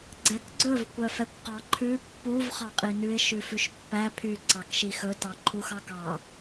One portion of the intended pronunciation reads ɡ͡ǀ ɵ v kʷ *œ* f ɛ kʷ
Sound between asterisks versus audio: correct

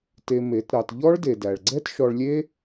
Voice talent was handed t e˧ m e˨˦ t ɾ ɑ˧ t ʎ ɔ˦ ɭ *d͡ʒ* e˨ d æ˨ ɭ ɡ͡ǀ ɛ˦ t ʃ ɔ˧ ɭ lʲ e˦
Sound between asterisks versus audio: incorrect: d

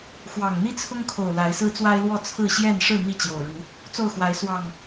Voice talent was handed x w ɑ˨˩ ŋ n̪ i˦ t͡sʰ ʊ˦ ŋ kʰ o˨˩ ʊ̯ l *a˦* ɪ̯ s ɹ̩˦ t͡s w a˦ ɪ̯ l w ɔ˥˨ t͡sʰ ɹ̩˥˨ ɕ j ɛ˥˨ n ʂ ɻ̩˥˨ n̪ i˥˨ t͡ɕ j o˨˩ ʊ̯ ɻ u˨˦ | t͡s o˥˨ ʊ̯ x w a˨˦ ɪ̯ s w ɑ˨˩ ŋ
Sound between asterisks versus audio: incorrect: a˨˦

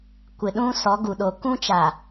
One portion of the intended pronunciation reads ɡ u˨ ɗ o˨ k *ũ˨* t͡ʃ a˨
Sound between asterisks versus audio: incorrect: ũ˦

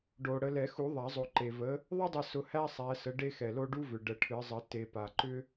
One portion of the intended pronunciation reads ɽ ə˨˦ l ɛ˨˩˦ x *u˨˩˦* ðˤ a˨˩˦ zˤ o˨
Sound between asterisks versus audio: correct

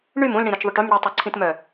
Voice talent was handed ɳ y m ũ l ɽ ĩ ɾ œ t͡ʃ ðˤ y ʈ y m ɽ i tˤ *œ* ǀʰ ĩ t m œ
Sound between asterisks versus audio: incorrect: ø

